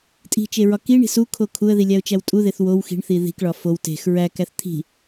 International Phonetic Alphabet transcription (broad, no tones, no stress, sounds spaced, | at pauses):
tʼ i̤ t͡ʃ e ɹ ɒ k i ɳ i̤ s u kʰ o kʰ u ə̯ ð i lʲ æ ʊ̯ t͡ʃ æ w tʼ u ð e θ w o w x i̤ ɳ θ i ð i̤ k ɭ ɒ f o w t e̤ x ɹ æ k æ θ t̪ʰ i̤